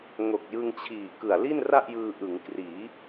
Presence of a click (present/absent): absent